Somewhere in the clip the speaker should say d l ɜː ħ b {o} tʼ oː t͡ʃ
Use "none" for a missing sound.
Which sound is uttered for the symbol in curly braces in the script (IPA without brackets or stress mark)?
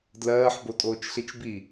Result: o